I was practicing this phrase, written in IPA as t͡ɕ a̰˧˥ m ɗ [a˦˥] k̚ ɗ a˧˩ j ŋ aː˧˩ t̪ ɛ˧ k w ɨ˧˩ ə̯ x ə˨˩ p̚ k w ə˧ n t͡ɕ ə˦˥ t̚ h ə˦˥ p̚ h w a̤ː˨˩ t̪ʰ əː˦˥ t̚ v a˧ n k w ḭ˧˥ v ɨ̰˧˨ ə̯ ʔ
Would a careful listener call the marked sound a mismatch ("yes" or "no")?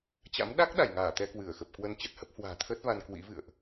no